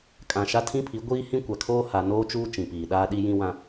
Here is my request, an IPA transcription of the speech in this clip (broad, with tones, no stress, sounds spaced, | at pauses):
kʼ ã˨ ʃ a˦ tʰ ĩ˦ pʰ i˨˦ ɡʷ iː˦ h ĩ˦ kʷ a˨ kʰ oː˦ h a˨ n oː˦ t͡ʃ uː˦ t͡ʃ ĩ˨ p iː˨ ɗ aː˦ ɗ i˦ j ĩ˦ w ã˦